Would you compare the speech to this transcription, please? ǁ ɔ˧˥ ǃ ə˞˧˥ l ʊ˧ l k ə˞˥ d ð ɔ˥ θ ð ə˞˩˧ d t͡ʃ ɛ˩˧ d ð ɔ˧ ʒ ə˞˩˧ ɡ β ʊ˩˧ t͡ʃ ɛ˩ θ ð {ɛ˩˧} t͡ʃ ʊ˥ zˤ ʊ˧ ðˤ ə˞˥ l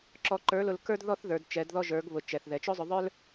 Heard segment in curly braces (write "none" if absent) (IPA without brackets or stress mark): ɛ˩˧